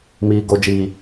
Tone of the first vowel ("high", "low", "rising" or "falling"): high